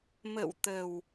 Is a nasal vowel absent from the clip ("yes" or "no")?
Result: yes